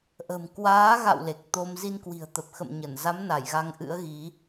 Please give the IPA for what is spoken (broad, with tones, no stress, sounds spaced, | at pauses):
ʔ ə̤˨˩ m k w aː˨˦ ɣ a̰˧˨ w l e˨˩ k̚ t̪ o˧ m z i˧ n k w i̤˨˩ ə̯ t̪ ə˨˩ p̚ x ə̰˧˨ m ɲ ə˧˩ n z a˨˦ m n a˧˩ j ɣ a˧ ŋ ʔ ɨ̰˧˥ ə̯ ɣ i˨˦